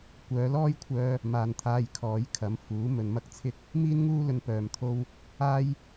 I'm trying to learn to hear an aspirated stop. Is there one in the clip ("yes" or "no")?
yes